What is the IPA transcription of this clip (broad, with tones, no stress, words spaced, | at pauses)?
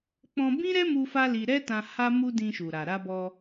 k͡pɔ̃˧bĩ˦ ɾɛ˦mu˧ fa˦li˧ ɾɛ˦tã˧ ha˧mu˧ dĩ˧ʃu˨ɾa˨ ɾa˧bɔ˧